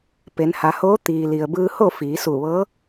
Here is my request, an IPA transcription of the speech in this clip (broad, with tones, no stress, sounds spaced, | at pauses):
p e˩˧ n h a˩˧ h oː˧˥ t̪ iː˩ l i˩ ə̯ b ɯː˧ h o˥˨ f iː˩˧ s u˧˩ ʋ ɤː˧˥